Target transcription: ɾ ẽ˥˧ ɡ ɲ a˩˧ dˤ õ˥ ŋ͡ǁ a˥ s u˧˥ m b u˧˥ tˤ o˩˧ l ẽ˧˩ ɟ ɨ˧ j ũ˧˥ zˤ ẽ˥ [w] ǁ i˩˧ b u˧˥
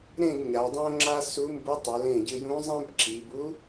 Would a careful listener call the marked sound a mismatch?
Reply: yes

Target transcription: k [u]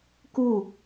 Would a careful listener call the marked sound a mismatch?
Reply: no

